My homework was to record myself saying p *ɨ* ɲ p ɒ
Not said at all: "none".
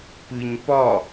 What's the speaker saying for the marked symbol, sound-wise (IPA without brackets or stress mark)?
ɨ